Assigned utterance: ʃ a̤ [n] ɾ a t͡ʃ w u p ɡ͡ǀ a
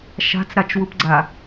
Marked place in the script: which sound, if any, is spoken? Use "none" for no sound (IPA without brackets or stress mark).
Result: t͡s